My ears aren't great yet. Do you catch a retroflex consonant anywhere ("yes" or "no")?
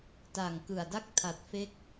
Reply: no